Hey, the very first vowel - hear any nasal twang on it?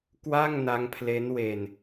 no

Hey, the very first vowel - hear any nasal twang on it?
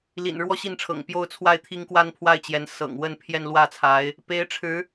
no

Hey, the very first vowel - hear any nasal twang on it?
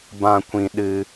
yes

